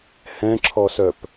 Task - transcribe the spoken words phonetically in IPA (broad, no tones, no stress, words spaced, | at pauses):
hɛ̃ǁʰɔsœp